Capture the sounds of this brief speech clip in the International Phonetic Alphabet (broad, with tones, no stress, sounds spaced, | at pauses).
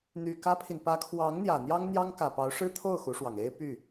n̪ y˨˩ k ä˥ pʰ i˨ n p ä˧˥ kʰ w ɑ˧˥ ŋ n̪ j ä˨˩ n̪ j ɑ˥ ŋ n̪ j ɑ˥ ŋ k ä˨˩ p ɑ˧˥ ʊ̯ ʂ ɻ̩˥ t̪ʰ o˥˩ ʊ̯ x u˧˥ ʂ w ɑ˨˩ ŋ e˥ ɪ̯ p y˥˩